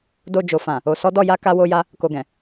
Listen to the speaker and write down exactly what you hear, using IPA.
do˧ d͡ʒo˨fã˨ | o˨sɔ˨˦ dɔ˦˨ja˨˦ ka˧wo˧ja˧ | ko˨ɡɛ̃˨

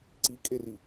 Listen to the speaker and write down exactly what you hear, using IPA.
ǀikʼeri

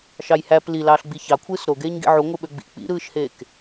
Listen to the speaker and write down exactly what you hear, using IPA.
ʃɑjhæp lilɑːɬ ɡ͡biçɑkʷʰɯːs ɾoɡeːɲɡḭ ʕuŋʷɯɓø ɡ͡bḭ k͡pḭɾɯːʃheːk

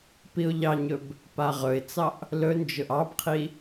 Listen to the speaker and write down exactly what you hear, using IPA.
piʊ̯ʎɑɲɵb | paʁɵɪ̯t͡sɑʔ | lɵnd͡ʒʊʔ ɑbqʰi

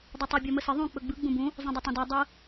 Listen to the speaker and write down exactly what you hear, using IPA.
dˤɵtˤu bʲɔməsə ðˤũ k͡pɵɡ͡bɯ ɡ͡bũbũ | zˤũdˤɵtˤõdɔ dˤɯ

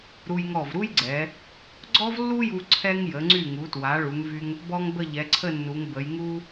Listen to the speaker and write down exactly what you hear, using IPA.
ɾu˧jŋɔ˧˩vɾu˥jɡ͡ǀɛ˩˧ | ɡ͡ǀɔ˥vlːu˥ju˧ ǀʰɛ˥ŋ jə˩˧ŋ͡ǀy˧˩ŋu˩˧twa˩˧ ɭu˩˧ŋvy˧ŋ | bɔ˥ŋ bə˥˧ʎɛ˩˧ǀʰə˥˧nːu˩˧ŋ bə˩˧jŋu˥

